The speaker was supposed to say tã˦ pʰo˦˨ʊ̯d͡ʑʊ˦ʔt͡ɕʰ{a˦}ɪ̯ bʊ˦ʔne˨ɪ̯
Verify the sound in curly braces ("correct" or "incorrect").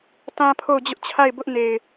incorrect